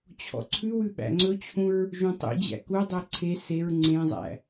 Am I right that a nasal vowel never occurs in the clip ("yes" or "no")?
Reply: no